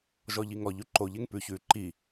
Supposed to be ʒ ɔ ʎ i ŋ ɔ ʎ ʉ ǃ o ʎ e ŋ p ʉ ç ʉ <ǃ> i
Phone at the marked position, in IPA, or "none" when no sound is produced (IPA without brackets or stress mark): ǃ